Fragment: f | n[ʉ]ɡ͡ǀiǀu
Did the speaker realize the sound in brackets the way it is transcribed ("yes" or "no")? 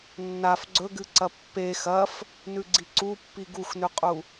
yes